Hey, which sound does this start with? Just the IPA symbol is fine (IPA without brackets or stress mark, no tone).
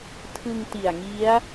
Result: tʰ